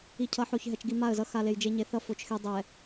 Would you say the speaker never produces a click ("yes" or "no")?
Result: yes